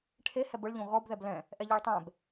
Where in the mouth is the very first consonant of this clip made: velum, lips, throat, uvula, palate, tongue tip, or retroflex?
retroflex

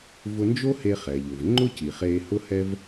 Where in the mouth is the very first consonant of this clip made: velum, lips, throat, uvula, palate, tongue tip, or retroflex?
lips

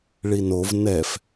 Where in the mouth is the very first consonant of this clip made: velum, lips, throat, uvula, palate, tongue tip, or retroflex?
retroflex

